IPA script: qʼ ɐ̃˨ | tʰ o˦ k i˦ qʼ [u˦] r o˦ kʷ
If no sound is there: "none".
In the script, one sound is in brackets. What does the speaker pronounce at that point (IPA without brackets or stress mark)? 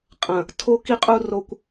u˦